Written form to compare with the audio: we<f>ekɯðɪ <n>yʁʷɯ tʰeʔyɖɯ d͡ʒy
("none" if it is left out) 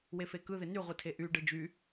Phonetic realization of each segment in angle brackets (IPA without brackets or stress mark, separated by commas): f, n